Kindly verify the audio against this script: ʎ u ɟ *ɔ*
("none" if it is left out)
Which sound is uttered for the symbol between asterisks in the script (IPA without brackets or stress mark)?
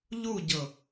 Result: ɤ